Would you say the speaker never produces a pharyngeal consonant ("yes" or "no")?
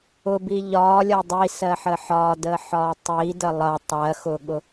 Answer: no